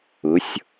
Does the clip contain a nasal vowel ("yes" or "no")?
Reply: no